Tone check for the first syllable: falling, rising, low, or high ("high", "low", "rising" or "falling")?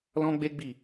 high